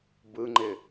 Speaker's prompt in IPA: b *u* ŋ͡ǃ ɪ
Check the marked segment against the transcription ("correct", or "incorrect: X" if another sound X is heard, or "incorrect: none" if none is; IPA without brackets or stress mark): incorrect: ɯ